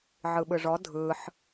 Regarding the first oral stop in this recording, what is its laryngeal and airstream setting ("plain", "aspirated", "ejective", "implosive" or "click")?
implosive